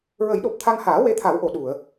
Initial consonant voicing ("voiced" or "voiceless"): voiced